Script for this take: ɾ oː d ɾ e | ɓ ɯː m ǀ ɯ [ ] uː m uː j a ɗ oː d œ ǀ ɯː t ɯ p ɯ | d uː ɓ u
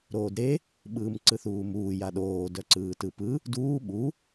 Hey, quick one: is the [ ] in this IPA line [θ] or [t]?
θ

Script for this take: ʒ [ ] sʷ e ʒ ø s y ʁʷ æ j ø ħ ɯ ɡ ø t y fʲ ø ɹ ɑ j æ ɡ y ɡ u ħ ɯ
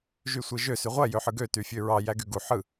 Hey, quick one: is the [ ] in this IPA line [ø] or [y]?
y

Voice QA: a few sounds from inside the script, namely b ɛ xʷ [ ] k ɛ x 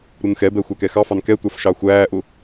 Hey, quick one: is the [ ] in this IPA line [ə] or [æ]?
æ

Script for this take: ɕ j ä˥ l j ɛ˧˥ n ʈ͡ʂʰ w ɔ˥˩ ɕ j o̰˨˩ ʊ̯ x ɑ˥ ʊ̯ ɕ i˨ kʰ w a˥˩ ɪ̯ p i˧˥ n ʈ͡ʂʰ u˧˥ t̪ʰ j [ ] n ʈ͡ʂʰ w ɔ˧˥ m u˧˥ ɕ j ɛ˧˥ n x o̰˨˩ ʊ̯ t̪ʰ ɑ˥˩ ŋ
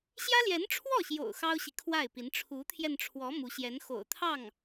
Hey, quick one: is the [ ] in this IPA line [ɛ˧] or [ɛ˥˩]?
ɛ˧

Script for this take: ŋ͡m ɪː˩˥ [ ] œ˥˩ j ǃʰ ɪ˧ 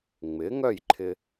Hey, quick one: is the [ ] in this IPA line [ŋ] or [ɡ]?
ŋ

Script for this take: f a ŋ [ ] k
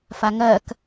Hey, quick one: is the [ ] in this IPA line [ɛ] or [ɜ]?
ɜ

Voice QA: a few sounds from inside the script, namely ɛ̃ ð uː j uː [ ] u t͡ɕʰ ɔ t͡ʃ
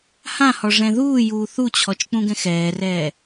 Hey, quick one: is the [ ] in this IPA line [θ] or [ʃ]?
θ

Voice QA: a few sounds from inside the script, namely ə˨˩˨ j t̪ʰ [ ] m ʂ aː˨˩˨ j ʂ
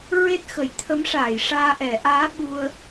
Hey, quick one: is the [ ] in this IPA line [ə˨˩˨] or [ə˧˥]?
ə˧˥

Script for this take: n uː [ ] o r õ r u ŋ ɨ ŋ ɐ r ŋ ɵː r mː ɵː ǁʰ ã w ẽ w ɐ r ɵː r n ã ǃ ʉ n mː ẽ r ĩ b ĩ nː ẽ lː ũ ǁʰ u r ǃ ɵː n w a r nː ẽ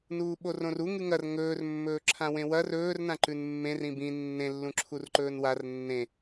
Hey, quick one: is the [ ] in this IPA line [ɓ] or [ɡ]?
ɓ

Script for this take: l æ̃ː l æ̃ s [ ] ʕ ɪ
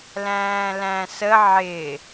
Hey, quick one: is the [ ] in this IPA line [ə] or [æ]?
ə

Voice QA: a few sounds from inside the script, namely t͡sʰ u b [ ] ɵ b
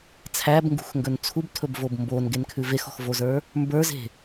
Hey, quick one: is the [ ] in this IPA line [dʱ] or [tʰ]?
tʰ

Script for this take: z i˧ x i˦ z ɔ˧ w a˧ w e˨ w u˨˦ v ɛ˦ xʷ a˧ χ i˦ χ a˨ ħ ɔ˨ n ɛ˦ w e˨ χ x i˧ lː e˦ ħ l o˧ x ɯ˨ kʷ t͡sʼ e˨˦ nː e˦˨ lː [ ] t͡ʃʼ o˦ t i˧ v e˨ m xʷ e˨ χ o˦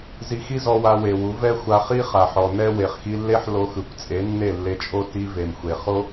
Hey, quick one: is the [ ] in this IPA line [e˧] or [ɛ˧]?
e˧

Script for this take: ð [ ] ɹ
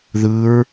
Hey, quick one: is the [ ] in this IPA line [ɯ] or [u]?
ɯ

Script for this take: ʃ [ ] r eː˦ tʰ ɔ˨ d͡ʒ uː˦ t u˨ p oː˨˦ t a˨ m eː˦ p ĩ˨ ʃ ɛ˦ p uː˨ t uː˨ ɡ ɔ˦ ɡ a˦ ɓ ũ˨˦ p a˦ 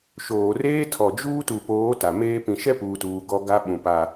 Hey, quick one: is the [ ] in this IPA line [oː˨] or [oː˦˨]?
oː˨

